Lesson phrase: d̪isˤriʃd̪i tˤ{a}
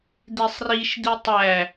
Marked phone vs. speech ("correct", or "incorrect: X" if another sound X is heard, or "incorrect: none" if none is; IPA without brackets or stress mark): incorrect: æ